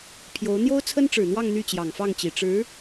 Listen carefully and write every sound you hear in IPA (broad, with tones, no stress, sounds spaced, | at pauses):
pʰ j o˧˥ ʊ̯ n̪ j o˥ ʊ̯ t͡sʰ ə˥ n ʈ͡ʂ ɻ̩˨˩ n̪ w ɑ˥˧ ŋ n̪ y˥˩ t͡ɕ j ɑ˨˩ ŋ f ɑ˥˩ ŋ t͡ɕ i˨˩ ʈ͡ʂ ɻ̩˧˥